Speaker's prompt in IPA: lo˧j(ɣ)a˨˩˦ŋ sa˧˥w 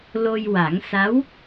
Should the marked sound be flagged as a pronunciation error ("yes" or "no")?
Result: yes